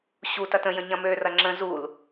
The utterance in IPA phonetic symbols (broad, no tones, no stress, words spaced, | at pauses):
ɕu tɐtə̃jə̃ ɲɐ̃mørɐ ŋ͡ǁə̃ zul